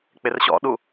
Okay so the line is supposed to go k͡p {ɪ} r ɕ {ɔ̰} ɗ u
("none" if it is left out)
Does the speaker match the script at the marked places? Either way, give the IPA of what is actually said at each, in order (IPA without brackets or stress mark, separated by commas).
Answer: ɪ, ɔ̰